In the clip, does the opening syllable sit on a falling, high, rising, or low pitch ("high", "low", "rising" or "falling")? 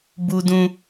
high